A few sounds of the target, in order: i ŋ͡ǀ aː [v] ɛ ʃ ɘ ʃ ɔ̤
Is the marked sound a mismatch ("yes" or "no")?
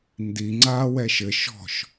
yes